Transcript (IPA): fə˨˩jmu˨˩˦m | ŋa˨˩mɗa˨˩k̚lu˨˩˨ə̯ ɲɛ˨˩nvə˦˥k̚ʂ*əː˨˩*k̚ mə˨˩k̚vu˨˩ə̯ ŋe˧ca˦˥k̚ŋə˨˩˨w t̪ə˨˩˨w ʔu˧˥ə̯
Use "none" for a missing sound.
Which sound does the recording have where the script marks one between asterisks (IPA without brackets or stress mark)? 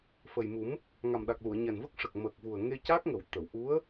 ə˨˩